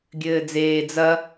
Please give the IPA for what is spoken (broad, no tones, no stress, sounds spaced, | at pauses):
ɡʲ ɘː d͡z eː d͡z ɐ